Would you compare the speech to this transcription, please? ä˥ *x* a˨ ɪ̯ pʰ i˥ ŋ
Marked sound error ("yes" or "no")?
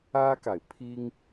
yes